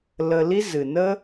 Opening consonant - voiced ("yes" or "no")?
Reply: yes